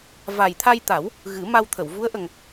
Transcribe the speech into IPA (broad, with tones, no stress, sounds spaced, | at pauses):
v a˨˩ j t̪ʰ a˧ j t̪ a˨˩˦ w | ɣ ɨ˨˩˦ m a˧ w t̪ʰ ə˨˩˨ w v u˧˥ ə̯ ʔ ə˨˩ ŋ